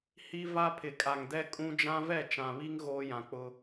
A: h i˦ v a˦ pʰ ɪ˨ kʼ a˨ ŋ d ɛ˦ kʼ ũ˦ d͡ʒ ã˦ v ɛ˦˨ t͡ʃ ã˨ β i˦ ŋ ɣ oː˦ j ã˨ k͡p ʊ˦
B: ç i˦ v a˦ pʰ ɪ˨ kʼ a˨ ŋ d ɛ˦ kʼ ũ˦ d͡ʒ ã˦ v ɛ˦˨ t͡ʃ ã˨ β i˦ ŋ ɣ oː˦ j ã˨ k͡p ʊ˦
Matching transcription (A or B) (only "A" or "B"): A